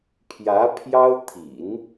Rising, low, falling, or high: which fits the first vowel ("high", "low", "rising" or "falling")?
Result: rising